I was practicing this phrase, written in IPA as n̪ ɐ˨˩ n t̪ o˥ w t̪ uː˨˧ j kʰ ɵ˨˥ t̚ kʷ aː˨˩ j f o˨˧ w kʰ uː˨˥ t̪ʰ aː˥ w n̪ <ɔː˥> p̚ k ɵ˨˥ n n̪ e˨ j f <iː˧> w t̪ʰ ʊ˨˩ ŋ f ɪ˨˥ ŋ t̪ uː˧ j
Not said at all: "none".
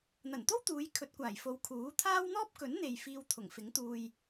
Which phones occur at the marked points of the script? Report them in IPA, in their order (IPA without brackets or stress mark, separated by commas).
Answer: ɔː˥, iː˧